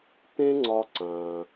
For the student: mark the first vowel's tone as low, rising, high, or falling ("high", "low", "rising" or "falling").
high